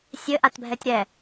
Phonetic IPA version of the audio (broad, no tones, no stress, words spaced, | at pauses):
sʲɘʔatbʱɛtʲ ɾɛ